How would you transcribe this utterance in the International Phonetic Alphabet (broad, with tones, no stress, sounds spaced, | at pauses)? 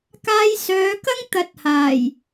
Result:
k aː˧ j s œː˨˧ k ɐ˥ ŋ t̪ ɐ˧ t̚ h aː˨˩ j